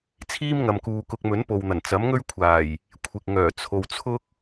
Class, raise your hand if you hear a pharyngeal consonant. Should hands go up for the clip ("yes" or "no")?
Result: no